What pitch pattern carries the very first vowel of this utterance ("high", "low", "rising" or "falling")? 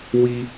high